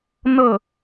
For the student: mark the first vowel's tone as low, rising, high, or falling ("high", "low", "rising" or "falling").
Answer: falling